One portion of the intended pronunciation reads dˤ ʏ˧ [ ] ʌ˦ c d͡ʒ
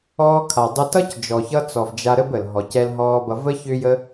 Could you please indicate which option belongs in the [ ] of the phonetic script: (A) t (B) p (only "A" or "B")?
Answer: A